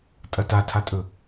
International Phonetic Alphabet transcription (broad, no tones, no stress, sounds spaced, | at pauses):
tʼ ɐ t a tʰ a tʼ ɵ